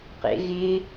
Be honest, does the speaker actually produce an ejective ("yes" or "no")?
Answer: no